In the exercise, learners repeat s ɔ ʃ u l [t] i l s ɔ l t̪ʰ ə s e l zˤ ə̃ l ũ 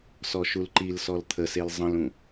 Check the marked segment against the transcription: incorrect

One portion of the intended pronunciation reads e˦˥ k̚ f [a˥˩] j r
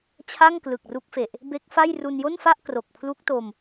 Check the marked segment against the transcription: correct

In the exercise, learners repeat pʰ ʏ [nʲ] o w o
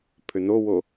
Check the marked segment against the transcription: incorrect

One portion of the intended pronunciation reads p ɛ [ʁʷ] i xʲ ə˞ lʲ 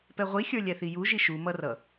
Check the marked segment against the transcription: correct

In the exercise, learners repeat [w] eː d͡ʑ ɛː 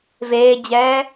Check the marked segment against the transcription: incorrect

